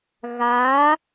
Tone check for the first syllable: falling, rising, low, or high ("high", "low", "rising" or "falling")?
rising